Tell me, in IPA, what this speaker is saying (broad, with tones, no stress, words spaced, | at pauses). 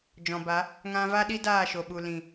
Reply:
d͡ʒɔ̃˨ba˨˦ | ŋã˧va˦ɗi˦ daː˦˨ʃo˨ɓu˨ lĩ˨